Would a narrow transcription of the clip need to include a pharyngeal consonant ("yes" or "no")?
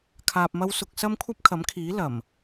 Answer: no